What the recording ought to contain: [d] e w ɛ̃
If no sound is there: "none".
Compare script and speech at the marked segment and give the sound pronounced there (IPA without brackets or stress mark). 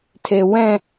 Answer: tʰ